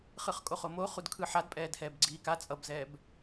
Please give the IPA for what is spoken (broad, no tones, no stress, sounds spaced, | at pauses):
χ ɯ χ kʼ o χ o m o χ u d kʰ ɯ ħ a d pʼ ɛː d h ɛː b ɡ͡ǀ iː k a t͡sʼ ʌ b z ɛː b